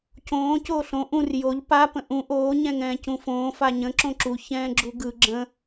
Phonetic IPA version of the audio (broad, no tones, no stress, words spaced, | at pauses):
cõː coːɬõ ʔũr joʎ pa pə̃ʔũ ʔoː ɲɛ̃ŋɛ̃ːcũfõː faɲə̃ ǁõǁu çɛ̃ːɡ͡ǁuɡɯ ɡ͡ǁə̃